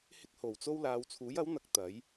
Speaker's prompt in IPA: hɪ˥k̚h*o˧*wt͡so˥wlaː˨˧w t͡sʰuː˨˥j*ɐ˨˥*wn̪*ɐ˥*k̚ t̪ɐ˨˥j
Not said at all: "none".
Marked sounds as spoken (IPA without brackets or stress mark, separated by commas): o˨˩, ɐ˨˥, ɐ˨˥